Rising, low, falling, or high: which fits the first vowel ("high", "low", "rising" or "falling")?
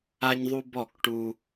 high